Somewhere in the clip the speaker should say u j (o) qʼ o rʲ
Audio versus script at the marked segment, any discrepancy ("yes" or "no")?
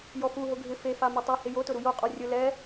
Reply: no